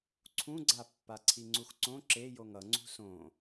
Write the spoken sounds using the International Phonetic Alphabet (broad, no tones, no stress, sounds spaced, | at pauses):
ǀʰ ũ ɡ͡ǀ a pː a ǀʰ i ŋ͡ǀ u x ǀ õ ǁ e j o ŋ ʌ ŋ͡ǀ ṳ s õ